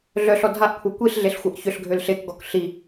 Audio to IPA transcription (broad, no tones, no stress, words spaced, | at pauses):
ɮœɬɔ dʱaʔkʷʰɤ kʷiɬɮeɬxʷɤʔ çʏɬɡʱøl ɬekɡɔk ɬi